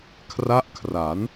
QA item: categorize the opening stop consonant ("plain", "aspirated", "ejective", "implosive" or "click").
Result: aspirated